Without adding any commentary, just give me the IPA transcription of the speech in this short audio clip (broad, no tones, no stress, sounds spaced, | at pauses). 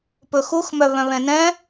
p ɵ x u x m œ β œ̃ β ɛ̃ n ɛ̃